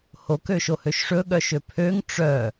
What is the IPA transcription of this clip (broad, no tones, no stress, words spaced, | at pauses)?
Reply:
hok øʃohøʃʂɵ ɠœʃøpʰøŋ ʈ͡ʂœ